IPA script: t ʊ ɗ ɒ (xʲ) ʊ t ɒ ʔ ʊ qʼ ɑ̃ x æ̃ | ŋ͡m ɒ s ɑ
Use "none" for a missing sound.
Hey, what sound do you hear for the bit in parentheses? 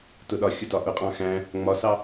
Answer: xʲ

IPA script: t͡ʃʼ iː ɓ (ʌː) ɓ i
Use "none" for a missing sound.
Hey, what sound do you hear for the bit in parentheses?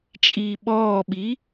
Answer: ɔː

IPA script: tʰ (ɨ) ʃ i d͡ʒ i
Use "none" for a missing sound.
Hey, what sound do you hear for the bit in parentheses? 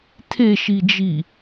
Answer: e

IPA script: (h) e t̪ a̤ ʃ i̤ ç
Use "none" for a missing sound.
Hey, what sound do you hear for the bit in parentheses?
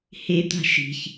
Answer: h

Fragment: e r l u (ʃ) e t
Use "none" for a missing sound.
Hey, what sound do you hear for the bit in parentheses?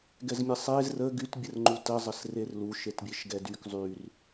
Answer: ʃ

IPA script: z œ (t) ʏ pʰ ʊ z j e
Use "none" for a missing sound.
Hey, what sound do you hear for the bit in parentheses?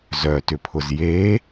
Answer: t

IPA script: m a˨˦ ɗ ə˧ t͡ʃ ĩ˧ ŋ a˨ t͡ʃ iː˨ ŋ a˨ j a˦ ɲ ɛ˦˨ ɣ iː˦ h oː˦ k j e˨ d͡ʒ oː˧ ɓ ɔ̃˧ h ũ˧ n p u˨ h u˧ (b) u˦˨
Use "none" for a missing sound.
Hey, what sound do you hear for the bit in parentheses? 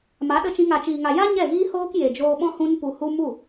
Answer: m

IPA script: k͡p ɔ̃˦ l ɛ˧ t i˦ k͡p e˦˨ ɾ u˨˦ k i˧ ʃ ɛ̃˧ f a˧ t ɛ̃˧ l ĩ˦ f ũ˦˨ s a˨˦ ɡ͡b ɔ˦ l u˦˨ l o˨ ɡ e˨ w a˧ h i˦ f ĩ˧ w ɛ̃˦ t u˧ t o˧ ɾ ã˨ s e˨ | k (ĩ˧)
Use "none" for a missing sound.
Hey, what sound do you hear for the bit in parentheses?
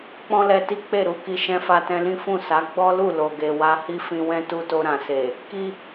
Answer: i˧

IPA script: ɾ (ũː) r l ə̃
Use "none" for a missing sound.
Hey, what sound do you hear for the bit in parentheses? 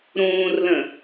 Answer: ũː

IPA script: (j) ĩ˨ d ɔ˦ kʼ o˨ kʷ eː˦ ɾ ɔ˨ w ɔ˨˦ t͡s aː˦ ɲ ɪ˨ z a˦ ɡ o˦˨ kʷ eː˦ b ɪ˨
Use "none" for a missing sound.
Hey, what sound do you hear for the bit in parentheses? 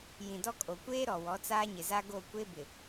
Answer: j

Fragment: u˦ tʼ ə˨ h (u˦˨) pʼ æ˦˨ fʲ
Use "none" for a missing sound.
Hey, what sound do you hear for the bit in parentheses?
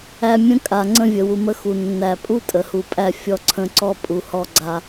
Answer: u˨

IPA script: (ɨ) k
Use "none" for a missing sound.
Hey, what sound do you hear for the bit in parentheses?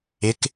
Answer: ɪ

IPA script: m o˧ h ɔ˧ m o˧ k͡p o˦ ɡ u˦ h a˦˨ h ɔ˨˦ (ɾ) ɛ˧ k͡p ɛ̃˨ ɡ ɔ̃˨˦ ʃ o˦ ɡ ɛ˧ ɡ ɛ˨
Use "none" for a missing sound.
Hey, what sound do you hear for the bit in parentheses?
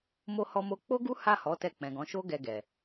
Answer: t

